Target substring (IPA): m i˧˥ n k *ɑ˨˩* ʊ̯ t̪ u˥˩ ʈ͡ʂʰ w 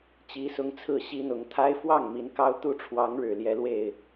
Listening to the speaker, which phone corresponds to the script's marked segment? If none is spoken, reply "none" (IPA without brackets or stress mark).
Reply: ɑ˥